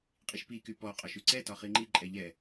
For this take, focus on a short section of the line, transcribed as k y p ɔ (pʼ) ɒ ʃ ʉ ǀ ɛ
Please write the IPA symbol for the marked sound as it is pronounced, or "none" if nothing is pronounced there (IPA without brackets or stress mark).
qʼ